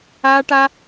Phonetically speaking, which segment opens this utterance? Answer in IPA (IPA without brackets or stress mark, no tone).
aː